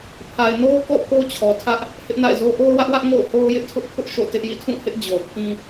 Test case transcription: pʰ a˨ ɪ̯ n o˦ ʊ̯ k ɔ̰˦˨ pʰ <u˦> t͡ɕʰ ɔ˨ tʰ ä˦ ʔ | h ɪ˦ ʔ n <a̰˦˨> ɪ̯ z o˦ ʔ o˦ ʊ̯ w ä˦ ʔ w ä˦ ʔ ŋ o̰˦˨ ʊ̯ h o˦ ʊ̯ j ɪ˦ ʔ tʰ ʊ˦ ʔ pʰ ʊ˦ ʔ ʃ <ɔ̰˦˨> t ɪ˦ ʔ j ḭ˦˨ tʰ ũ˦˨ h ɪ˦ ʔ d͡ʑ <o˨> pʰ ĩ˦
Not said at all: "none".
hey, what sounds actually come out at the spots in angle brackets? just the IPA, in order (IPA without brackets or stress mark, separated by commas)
o˦, a̰˦˨, o̰˦˨, o˨